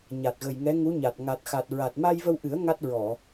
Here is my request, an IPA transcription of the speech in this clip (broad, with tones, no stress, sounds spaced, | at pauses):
ɲ a˨˩ t̚ ɣ ə˨˩ j ŋ ɛ˧˥ ŋ u˧˥ ɲ a˨˩ t̚ ŋ a˨˩ t̚ x a˨˩ t̚ ɹ a˨˩ t̚ m a˧ j v ə˧ w ʔ ɨ˨˩˦ ə̯ ŋ a˦˥ t̚ ɹ ɔ˨˩˨